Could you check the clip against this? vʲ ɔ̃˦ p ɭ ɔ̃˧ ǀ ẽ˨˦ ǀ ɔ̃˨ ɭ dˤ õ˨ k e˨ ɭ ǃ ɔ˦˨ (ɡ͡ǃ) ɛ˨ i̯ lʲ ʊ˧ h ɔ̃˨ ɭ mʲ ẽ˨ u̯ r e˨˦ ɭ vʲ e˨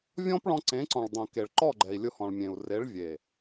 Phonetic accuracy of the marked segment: correct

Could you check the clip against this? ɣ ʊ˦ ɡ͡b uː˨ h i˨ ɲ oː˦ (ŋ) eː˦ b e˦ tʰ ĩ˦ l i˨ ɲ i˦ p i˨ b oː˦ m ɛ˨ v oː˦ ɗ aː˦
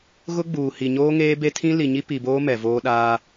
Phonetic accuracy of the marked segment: correct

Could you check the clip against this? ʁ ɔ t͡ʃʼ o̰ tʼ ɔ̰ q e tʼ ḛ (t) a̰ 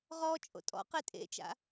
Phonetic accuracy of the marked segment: incorrect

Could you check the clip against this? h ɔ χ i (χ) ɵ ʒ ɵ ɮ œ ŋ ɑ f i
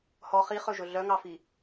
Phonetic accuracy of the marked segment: correct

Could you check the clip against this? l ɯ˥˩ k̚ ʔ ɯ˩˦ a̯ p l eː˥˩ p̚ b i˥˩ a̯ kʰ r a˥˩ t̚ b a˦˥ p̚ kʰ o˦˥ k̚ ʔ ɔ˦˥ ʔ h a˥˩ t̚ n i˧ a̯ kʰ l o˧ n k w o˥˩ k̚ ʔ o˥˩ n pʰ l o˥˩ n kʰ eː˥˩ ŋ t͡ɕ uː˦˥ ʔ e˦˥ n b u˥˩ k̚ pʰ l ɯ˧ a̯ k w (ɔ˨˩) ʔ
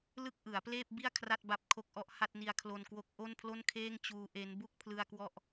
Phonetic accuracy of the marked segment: incorrect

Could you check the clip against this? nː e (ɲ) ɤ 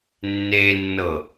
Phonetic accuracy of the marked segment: incorrect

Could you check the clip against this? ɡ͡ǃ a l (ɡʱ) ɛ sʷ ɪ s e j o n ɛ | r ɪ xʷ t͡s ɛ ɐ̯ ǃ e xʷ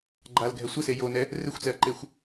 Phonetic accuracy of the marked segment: correct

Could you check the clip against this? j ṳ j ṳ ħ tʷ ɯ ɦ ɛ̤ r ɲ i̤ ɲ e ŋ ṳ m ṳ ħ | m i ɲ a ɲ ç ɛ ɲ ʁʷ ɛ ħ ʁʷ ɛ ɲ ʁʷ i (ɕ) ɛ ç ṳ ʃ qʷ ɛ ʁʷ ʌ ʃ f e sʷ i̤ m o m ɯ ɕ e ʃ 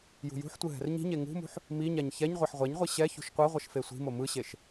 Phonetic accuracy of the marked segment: correct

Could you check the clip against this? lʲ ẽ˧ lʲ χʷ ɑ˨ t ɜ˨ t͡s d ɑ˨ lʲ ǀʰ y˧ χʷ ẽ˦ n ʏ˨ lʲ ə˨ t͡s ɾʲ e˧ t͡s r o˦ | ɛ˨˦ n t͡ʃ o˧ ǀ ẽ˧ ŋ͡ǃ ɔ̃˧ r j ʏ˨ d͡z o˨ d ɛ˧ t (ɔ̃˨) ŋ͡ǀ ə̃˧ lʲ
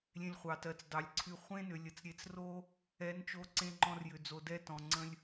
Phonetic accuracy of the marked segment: correct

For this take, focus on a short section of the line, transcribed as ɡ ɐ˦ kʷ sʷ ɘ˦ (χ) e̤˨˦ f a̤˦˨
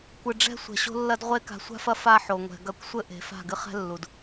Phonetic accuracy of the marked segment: incorrect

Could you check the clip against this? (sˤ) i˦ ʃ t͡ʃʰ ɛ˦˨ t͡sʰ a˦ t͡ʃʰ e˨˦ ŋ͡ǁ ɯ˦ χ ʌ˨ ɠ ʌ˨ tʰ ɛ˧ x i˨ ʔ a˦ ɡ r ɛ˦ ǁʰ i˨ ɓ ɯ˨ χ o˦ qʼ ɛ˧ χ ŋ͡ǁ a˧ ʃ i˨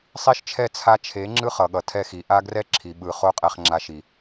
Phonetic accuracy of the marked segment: correct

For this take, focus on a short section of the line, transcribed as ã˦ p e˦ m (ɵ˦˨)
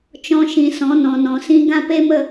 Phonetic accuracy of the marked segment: incorrect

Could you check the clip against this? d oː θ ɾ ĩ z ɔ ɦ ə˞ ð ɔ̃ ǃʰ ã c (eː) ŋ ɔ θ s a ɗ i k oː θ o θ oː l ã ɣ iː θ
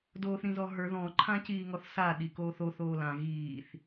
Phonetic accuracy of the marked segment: incorrect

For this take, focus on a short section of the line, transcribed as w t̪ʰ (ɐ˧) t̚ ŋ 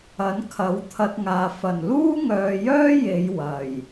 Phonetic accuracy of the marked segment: correct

